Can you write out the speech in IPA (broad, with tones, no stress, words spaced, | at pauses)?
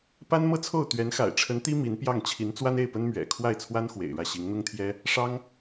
pa˥nmɤ˥˧t͡sʰo˥˩ʊ̯ t̪ɥɛ˧˥nxa̰˨˩ɪ̯ʈ͡ʂʰə˧˥nt̪i˥ mi˧˥npjɑ˥˩ŋ t͡ɕʰi˧˥nt͡swa˥ne˥˩ɪ̯pə˥n mɥɛ̰˨˩ kʰwa˥˩ɪ̯t͡sʰwa˥n xwḛ˨˩ɪ̯ɻä˥˩ɕi˧˥ŋ n̪ʊ˥ŋt̪ʰjɛ˥ | ʂɑ˥ŋ